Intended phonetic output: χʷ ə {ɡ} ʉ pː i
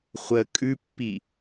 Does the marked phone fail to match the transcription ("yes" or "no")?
yes